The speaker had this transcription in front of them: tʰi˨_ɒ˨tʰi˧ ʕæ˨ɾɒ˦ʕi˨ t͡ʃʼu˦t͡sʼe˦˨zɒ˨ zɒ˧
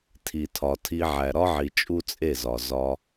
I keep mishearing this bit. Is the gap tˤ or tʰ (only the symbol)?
tʰ